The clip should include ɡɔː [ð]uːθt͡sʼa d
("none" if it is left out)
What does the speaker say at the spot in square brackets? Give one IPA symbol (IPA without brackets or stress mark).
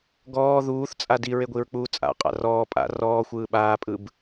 ð